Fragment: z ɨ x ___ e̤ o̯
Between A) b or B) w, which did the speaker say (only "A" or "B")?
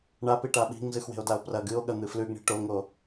B